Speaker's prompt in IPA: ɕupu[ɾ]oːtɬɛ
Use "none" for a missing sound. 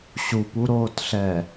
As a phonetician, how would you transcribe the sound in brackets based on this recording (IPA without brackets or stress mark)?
ɾ